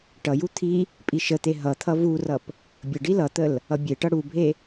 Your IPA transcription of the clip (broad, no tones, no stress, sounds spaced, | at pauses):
ʈ ʌ j u t̪ʰ i | pʼ i ʃ ə t̪ e ɦ ʌ t̪ʰ ʌ v u r ʌ p | bʲ ə ɖ i l ʌ t̪ ə l | ʌ bʲ e ʈ ʌ ɽ u bʱ e